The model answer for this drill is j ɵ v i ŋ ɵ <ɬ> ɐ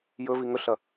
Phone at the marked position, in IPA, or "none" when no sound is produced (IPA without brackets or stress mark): ɬ